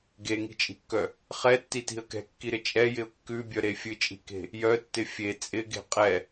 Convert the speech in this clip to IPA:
ɡeŋi̤t͡ʃʼi̤kːœ | χɛtːiti̤ə̯ kɛ̤kːiɾɪ t͡ʃʼɛjɪʊ̯ kːʉbʲœɾe fʲɨt͡ʃʼi̤ke̤ | jœtːɪ fʲe t͡sʼɪɡe̤ qʼɛ

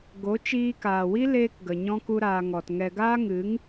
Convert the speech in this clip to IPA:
ɡo˨˦t͡ʃiː˧kaː˨wi˦ leː˦kɡə˨ ɲɔ̃˦ku˦ɾaː˧ŋɔ˨t ŋɛ˧ ɡaː˦ŋɨ˨˦ŋ

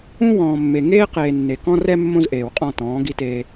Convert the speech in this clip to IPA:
ũ˦wɔ̃ː˨mːe˨ ŋeː˦ qeː˨ nːe˨kɔ̃˦rɛ˦ mːõ˦zʔeː˨wqʼɔ̃˦˨tɔ̃ː˨˦ ɡi˦teː˦

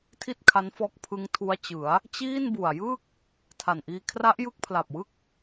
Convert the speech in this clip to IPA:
tʰi˥˩t̚kʰa˦˥nfɔː˦˥k̚ pʰɯ˦˥ŋtʰu˦˥a̯t͡ɕɯ˩˦a̯ | t͡ɕiː˥˩nbu˨˩a̯ jɯ˥˩k̚ | tʰa˨˩nʔiː˧ kʰra˦˥ʔjɯ˦˥k̚pʰla˨˩p̚wɯ˦˥k̚

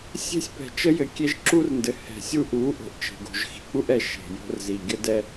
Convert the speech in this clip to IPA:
sʲe̤˦sʲpɛ̤˨t͡ʃə˦ jɘ˨kʲe˦ʒǁu˦rndɘ˨ hɛ̤˨sʲu˦ʔu˨˦ ʔo̤˨ʔt͡ʃe̤˨ɡo̤˨ʒ xi̤˨k͡pu˦ʔɛ˨ ʃe̤˨jo̤˦rzi˨ ɡʲə˦dɛ˦

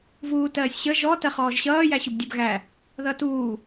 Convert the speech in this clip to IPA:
vuːtɜːsʲɕə ʒɔ tɜχɔːʒɕʌː jæɕʊbdʲɜbɣæ | ðʌtuː

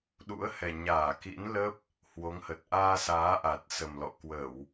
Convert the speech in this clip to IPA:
ɗṵ˧˥ə̯hɛ˨˩ ɲaː˧˩ kḭ˧˥nlə˦˥p̚ | hwo˨˦ŋhə˨˩t̚ ʔaː˧saː˨˦ ʔa˨˩t̚sə˨˩mlɔ̰˧˨ kwə˧˩˨w

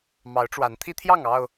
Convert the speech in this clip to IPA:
mɑ˨˦ʊ̯ʈ͡ʂwa˨˦nt̪ʰi˦t̪ʰjɑ˥˨ŋ ɑ˥˨ʊ̯

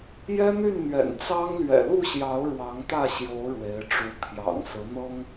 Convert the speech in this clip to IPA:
jɛ˦n̪y˥˨nn̪ɥɛ̰˨˩n t͡sɑ˦ŋ lɥɛ̰˨˩lu˥˨ɕjɑ˨˦ʊ̯ ɻwɑ˨˦ŋt̪ä˥˨ɕjo˨˦ʊ̯ ɻwe˨˦ɪ̯ʈ͡ʂu˨˦ t̪ʰjɑ̰˨˩ŋ sɹ̩˨˦n̪ɤ˦ŋ

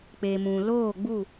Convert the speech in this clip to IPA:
k͡pe˨mũ˨ loː˦˨ɡ͡bu˦˨

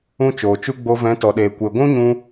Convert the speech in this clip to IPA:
ũ˧ t͡ʃoː˨t͡ʃu˦ ɡ͡bo˧vɛ̃˨˦ tɔ˨ɗeː˨ kʷe˨ɡʷũ˦ɲũ˧

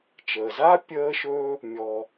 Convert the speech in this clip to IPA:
t͡ʃəː˩ zaː˥ pʲəː˦ʃɵ˦ | mʲɔ˨

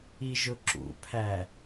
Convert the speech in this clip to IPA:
iʒʊǁṵpʰæ

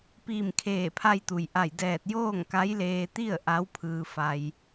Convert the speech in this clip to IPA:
piː˧˩mkʰeː˧˩pʰa˧jt̪u˩j ʔa˧˩jdɛː˧˩t̚ joː˥˨ŋka˧˥jleː˧t̪i˥˨ə̯ ʔa˧˥w pʰɯː˧fa˧j

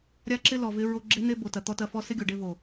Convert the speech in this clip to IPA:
ɾʲa˦ǁɪ˦ lɔ˨ vɪ˦ ɹo˧ɡ͡ǁe˦n̪e˦ bo˨tɐ˨t̪ɔ˧ tɐ˧fɔ˦ sɪ˦ɡʲo˨ɖe˧vo˨

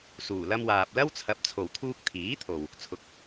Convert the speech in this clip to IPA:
suː˨˩lɐ˧mwaː˨p̚ lɐ˥wt͡sʰɐ˨˥p̚ t͡sʰo˨˩wt̪ʰuː˧k̚t̪ʰiː˨˥t̪ʰo˨w | t͡sʰʊ˨˥k̚

